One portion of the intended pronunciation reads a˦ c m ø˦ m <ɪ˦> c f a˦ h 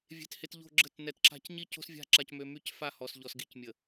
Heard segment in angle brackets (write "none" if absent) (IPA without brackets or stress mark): y˦